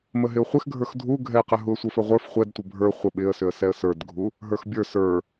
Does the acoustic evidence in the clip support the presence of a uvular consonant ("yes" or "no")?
yes